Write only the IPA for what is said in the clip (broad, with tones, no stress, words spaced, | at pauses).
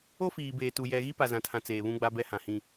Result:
o˦fiː˨beː˨tu˨ jɛ˨ ɣi˦pa˨zã˨tʰã˨ t͡seː˨βũ˦ɡ͡ba˦bɛ˦ hã˨hĩ˦